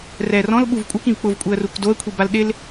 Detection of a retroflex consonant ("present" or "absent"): absent